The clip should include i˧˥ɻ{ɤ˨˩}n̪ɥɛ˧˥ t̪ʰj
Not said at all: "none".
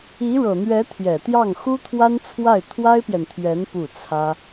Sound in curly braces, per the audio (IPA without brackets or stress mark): ɤ˨˩